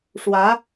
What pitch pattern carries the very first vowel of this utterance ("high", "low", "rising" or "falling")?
rising